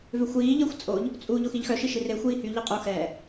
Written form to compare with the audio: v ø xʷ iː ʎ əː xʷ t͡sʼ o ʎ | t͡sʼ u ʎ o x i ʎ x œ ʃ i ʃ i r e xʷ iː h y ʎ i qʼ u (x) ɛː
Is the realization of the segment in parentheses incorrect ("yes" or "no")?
no